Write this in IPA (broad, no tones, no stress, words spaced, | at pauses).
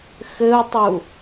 xɘu̯tˤu